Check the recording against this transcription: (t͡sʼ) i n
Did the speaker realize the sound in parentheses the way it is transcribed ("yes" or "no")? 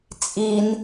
yes